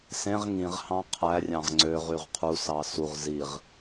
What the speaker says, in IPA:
s ẽ ʁ ŋ ĩ ʁ h ɑ̃ qʰ æ rʲ ɑ̃ ʁ ŋ͡ǀ ø ʁ y ʁ qʰ u s ɑ s u ʁ z i ʁ

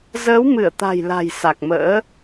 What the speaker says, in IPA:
z əː˨˦ w m ɨ˧˩ ə̯ t̪ a̤˨˩ j l a̤˨˩ j s a˨˩ k̚ m ə̰ː˧˥

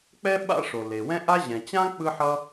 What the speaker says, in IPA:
k͡p ɛ˥ ɓ a̰˥ ʂ o˩ l e˩ w ɛ̃˥ ʔ a˥ ʑ ɛ̃˩ t͡ɕ ã˥ k͡p ɯ˥ ħ ʌ˥

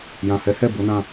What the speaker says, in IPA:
j ã˨ h ɛ˨˦ h ɛ˦˨ b o˨˦ n ã˧

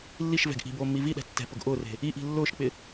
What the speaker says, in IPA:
lː i ʃ v ɛ̤ ɡ ʔ i̤ b oː mː i v i ɗ ɛ̤ tː ɛ̤ p ʊ ɡ ʔ ʊː r e̤ | i ʔ i̤ lː ʊː ʃ k͡p ɪ

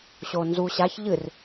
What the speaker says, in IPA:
ɕ o n z u ɕ a ç ʎ ɨ r

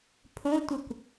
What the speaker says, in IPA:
pʰ õ tʷ ɯ kʷ

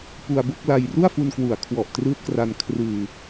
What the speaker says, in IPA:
p u˧ a̯ b o˥˩ k̚ l a˧ j r u˥˩ a̯ f u˧ n k w u˩˦ a̯ kʰ w ɔ˨˩ ʔ t r ɯː˦˥ t̚ k r a˧ n kʰ r ɯː˧

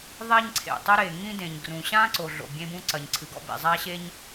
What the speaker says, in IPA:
ðˤ ɛ˥ ɲ ǀʰ ḛ˩ tˤ ɘ˥ ɾ e˩ ŋ ĩ˥ d ẽ˩ ɲ ɡ r ũ˩ ɕ ã˥ ǀ o˩ ɮ o̰˩ bʲ ẽ˥ b ũ˥ ǀ ɐ˩ ɲ ǀʰ ɨ˩ ɡ ɔ̰˥ b ḛ˩ zˤ a˥ ɕ e˥ ɲ

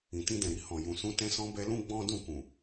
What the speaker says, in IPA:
ĩ˨ t ĩ˧ d ɛ̃˨ ɾ i˧ h ɔ̃˨ j ũ˨ s ũ˧ t ɛ̃˦ s ɔ̃˦ b ɛ˧ l ũ˦ ɡ͡b ɔ̃˦ d ũ˦˨ k ũ˨

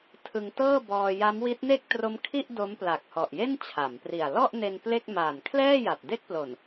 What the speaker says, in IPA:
tʰ ɯ˧ ŋ t ɤː˥˩ b ɔː˧ j a˦˥ m w i˦˥ t̚ n e˥˩ k̚ t r o˦˥ m kʰ i˥˩ ʔ d o˦˥ m p l a˨˩ k̚ h ɔ˨˩ ʔ j e˥˩ n t͡ɕʰ a˩˦ m p r i˨˩ a̯ l ɔ˥˩ ʔ n e˧ n p l e˥˩ k̚ m aː˨˩ n kʰ l ɛː˥˩ j a˨˩ t̚ d e˥˩ k̚ p l o˨˩ n

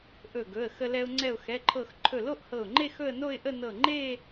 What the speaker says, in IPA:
ʔ ɵ˧˩ ɡ ɵ˩˧˩ ə̯ x ə˧ l ɛ˧ ʊ̯ ŋ͡ǀ ɛ˧˩ ʊ̯ x ɛ˩˧˩ ǃʰ ɤ˧˩ x ǃʰ ɵ˧˩ l o˥˧ ʔ h ɤ˧˩ ʊ̯ ŋ͡ǃ e˥˧ x ɵ˥˧ ə̯ n o˥˧ ɪ̯ ʔ ə˥˧ n ɤ˧˩ ŋ͡ǃ e˥˧

